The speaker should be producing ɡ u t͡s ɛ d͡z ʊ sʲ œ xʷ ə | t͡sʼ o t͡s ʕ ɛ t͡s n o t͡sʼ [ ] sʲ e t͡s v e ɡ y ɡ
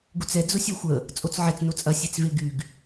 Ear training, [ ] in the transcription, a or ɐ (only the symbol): ɐ